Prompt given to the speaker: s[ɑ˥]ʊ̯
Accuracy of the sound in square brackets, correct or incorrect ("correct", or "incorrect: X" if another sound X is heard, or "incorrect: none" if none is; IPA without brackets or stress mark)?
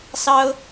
correct